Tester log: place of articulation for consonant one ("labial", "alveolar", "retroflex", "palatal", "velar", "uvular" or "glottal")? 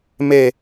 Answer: labial